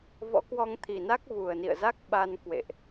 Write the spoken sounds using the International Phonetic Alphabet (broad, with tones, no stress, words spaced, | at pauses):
vɔ̰˧˥kwɔ˧ŋt̪ʰi˨˩na˦˥k̚ vu˨˩ə̯ nḭ˧˨ə̯za˦˥k̚ɓa˧n kwḛ˧˨ʔ